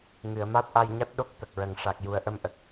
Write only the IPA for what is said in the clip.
ŋɨ˨˩˨ə̯ma˦˥t̚ʔa˧jɲa˦˥t̚ ɗo˦˥k̚t̪ə˨˩k̚ɹə˨˩ŋ ʂa˨˩k̚ju˨˩ə̯ʔə˧m ʔə˨˩k̚

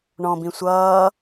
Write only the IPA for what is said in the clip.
ɳɔ̃bĩ sʷʌː

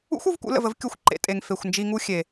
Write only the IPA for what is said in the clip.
ṵ˦xʷu˧vkṵ˧ lə̰˧və˦v kʲu˧xʷǃḛ˧tʼe˨ŋ fe˨xʷnd͡ʒi˧ŋu˦ xʲe˨

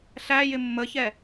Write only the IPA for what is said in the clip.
ɬæjɪ mːəçɛ

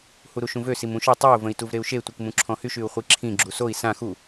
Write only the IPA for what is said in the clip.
huɾuʃũvø simũʃɔ tˤɛu̯ və̃i̯tuvɾeu̯ʃe tʷikmũǁʰɔ̃hyʃ yu̯χʷiǁʰĩ ɡ͡ǁusoi̯ sã xu

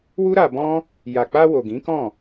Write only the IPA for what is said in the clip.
wu˦ɾa˧bɔ̃˦ | ja˨k͡pa˧ wo˨ɡĩ˨˦kɔ̃˦˨

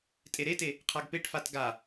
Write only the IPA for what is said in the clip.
tʼeɾete | qʰaɡpeʈfat ɡa

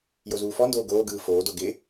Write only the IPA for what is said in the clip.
jozuːfɔndoː ɡoːɡɯː foːdo ɡɪ

